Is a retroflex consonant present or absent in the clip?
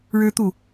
present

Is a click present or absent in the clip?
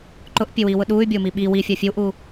present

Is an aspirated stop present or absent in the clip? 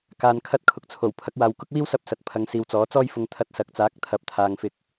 present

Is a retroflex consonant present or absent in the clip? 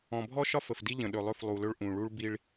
present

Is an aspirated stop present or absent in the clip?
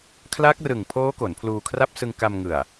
present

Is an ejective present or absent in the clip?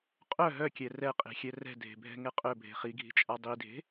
present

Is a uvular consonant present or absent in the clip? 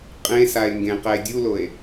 present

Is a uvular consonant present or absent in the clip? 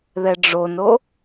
absent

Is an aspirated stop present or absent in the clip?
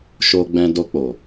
absent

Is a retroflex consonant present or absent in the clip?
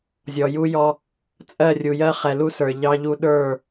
absent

